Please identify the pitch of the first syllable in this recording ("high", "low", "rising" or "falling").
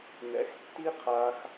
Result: rising